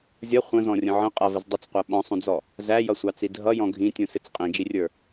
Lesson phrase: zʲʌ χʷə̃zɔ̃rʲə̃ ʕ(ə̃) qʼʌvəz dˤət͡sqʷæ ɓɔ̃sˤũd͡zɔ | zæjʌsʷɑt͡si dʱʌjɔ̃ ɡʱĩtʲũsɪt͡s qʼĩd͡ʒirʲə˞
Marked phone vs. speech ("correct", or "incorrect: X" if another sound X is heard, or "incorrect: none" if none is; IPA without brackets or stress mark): correct